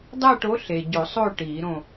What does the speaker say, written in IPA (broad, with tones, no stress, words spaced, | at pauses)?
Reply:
dˤæ˦˨ʈo˨˦ ɬe˨ ɟo˨˩˦ sˤo˦˨ ʈiː˨˩˦ɾõ˦˨